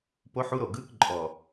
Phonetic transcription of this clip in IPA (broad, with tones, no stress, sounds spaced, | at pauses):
p o˧˥ ħ u˧˥ ɾ o˨˩ ɡ ɯ˧˥˧ k ǃʼ ɔ˨˩